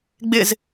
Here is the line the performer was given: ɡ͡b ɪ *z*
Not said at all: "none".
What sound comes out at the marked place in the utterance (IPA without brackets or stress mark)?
z